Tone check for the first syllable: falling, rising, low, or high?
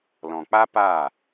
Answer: low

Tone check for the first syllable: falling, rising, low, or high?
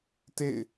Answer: falling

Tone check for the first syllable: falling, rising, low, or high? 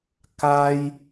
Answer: high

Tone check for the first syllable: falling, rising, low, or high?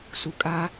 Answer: low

